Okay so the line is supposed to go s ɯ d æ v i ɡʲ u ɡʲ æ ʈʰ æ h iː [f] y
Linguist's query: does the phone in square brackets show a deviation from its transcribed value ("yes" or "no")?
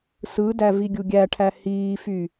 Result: no